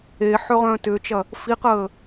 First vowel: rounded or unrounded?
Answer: unrounded